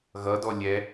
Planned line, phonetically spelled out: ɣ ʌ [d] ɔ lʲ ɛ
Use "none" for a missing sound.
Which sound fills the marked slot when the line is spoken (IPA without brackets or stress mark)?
d